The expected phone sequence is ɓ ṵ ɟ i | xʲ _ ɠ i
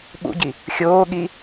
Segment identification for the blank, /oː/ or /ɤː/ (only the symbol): oː